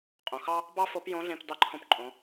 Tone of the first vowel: low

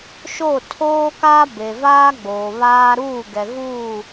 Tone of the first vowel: falling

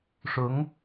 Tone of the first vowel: rising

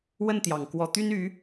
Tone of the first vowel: falling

